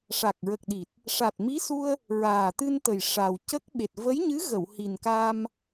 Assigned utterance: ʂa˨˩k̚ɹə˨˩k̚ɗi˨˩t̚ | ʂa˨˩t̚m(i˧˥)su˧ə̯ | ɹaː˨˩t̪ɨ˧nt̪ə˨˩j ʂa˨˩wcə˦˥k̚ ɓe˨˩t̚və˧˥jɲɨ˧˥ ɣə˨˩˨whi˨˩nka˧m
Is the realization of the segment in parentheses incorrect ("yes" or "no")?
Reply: no